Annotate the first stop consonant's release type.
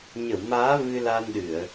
implosive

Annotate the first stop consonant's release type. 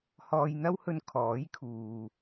aspirated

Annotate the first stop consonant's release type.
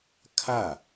aspirated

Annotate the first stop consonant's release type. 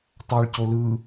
plain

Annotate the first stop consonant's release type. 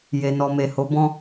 plain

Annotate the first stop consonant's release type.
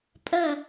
ejective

